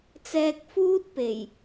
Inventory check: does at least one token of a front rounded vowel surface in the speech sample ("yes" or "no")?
no